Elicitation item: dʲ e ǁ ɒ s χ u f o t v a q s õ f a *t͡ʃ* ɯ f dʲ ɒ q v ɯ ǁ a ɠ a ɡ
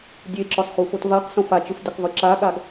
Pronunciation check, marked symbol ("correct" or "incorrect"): correct